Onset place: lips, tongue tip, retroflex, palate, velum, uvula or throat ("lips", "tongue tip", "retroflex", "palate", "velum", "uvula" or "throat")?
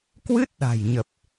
velum